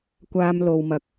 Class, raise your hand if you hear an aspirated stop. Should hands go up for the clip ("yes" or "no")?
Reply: no